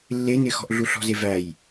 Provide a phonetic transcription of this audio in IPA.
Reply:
lː e n ɪ x ɔ̤ ʔ ɮ u ɬ ɔ̤ z e v æ j

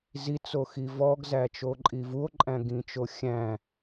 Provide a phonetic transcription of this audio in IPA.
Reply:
z i t͡s o x i v ɔ ɡ z æ t͡ʃ o ǃʼ i v u o̯ ǃʼ æ̃ ɡ ĩ t͡ʃ o xʲ æ̃

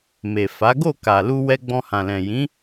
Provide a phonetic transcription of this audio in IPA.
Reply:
m e˨ f a˨˦ ɡ o˦˨ k a˨ l u˧ w ɛ˧ ɡ͡b ɔ̃˧ h ã˨ l ɛ̃˨ j ĩ˨˦

